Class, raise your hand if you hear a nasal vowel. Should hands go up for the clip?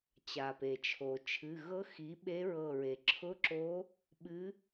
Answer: no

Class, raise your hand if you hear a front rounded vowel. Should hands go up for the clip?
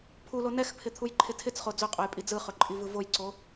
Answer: no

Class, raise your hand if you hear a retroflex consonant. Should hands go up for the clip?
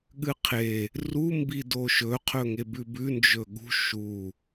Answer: no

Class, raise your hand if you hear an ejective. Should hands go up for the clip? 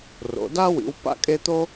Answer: yes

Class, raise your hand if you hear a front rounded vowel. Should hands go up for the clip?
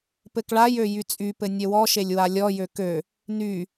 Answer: yes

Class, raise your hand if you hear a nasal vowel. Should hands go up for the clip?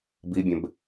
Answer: yes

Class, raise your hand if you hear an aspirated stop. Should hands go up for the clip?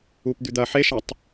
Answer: no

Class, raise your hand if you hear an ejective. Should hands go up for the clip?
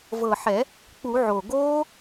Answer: no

